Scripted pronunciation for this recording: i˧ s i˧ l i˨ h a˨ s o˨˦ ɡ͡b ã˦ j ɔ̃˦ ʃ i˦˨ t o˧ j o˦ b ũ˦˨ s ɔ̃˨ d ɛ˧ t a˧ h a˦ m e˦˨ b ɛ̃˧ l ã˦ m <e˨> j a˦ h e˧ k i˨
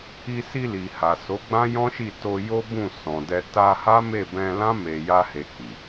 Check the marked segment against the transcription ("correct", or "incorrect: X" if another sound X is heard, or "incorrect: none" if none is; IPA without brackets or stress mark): incorrect: e˧